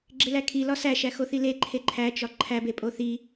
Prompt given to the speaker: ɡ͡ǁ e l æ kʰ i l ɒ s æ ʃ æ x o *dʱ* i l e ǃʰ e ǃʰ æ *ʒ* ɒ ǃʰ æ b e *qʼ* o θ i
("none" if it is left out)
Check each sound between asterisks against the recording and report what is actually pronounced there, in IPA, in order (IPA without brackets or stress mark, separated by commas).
θ, t͡ʃ, pʼ